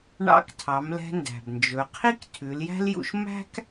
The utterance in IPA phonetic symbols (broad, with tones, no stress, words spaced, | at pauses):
ɳɑ̰˧˥ktʰɑ˩˧mlɛ̤˧ ndæ̤˩bnd͡ʒɵ˩˧ qʰi˥ktʰʉ˩˧ljæ̤˥ljṵ˧ʃ mæ̤˥k